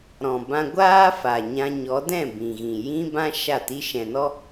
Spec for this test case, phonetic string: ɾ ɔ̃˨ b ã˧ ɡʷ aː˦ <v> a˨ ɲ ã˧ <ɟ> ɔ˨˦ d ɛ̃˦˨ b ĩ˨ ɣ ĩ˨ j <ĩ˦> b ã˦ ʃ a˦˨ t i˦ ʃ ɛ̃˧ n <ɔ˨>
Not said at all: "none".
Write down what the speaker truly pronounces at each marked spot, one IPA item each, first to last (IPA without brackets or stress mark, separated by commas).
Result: f, ɲ, ĩ˦, ɔ˦